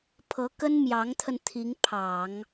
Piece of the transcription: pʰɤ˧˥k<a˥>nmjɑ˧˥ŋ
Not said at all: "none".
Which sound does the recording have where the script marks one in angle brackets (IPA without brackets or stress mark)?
ə˥